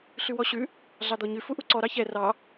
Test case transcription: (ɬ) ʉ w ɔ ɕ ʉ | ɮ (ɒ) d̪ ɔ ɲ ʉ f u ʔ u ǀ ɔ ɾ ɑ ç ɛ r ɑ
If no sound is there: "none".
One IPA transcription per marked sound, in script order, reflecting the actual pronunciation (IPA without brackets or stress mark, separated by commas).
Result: ɬ, ɑ